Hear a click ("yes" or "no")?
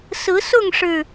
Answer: no